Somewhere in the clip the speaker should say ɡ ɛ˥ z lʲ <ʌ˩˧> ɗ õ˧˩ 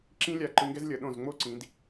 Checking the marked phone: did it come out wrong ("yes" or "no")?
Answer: no